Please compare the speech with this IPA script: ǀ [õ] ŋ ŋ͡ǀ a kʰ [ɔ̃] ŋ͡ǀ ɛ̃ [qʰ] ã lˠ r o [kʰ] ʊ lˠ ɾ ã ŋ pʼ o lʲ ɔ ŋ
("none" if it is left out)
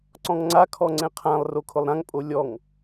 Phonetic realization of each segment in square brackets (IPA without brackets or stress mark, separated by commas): ɔ̃, ɔ, qʰ, kʰ